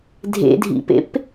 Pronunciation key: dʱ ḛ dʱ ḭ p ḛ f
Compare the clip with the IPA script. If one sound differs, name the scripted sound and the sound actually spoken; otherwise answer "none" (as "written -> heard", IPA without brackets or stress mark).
f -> p